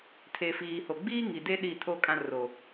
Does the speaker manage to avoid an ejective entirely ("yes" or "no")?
no